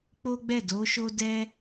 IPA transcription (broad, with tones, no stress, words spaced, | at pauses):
k͡po˦ɡ͡bɛ˦˨ do˨˦ʃo˦ dɛ˦